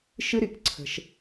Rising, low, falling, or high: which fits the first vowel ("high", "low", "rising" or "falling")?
high